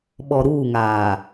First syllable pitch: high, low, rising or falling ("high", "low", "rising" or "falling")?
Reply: low